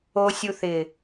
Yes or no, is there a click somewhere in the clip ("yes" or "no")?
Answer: no